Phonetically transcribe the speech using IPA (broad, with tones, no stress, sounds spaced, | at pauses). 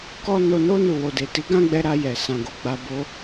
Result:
k ɔ˦ n o˧ n o˦ n u˦˨ w o˧ d e˨ t i˨˦ ɡ ã˦ ɡ͡b ɛ˧ ɾ a˧ j ɛ˨ s ã˧ ɡ o˧ ɡ͡b a˧ b o˦